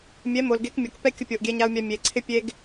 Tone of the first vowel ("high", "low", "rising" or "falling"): rising